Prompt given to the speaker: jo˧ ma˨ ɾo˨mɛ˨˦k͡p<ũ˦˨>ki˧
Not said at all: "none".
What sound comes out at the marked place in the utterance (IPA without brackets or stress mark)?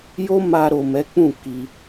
ũ˦˨